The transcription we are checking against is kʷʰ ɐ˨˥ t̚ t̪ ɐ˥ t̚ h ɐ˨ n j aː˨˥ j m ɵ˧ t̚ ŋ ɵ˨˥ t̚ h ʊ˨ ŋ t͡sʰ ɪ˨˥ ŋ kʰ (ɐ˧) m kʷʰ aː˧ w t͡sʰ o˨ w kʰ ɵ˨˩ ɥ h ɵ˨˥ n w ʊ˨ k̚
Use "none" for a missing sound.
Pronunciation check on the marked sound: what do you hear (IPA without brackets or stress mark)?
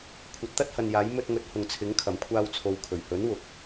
ɐ˨˩